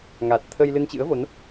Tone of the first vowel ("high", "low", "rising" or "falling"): low